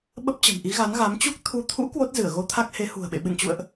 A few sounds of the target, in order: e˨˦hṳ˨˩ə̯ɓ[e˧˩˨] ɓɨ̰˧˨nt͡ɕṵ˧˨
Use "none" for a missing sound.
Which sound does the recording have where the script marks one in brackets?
ḛ˧˨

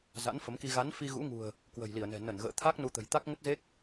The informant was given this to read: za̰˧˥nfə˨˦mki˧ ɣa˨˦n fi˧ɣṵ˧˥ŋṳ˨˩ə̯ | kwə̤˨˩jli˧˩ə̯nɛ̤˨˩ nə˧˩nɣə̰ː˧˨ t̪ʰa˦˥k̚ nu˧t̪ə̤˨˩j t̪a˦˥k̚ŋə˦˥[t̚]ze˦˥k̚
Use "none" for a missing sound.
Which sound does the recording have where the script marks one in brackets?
t̚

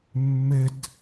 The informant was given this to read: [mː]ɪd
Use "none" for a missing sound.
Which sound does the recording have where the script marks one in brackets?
mː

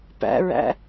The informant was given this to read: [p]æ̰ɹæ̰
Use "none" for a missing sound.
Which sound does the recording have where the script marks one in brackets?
p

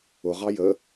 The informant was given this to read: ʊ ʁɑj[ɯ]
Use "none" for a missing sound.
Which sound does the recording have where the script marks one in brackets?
ə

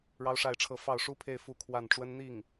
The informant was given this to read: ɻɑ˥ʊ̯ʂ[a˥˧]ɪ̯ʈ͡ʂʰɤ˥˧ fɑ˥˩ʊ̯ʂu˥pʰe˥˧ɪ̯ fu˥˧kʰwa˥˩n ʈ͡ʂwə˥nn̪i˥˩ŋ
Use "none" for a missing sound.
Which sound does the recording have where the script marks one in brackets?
a˥˧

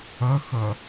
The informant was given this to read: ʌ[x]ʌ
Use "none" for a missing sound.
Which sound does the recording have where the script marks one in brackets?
x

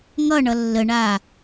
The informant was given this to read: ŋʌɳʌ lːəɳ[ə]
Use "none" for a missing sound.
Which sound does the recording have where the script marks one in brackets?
a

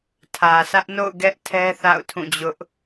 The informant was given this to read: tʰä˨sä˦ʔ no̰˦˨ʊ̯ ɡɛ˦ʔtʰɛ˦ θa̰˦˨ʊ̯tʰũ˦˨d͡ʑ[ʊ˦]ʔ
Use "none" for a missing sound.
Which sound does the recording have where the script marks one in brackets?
ʊ˦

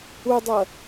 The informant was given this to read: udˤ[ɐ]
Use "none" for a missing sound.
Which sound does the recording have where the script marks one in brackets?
ɐ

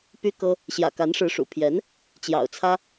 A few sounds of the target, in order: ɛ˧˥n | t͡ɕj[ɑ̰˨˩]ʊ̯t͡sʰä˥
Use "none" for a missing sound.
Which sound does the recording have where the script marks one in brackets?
ɑ̰˨˩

